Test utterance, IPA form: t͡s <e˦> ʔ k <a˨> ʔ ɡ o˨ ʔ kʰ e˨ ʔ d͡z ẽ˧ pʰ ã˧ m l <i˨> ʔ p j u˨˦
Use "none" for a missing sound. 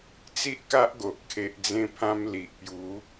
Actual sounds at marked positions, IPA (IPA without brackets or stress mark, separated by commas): i˦, a˦, i˨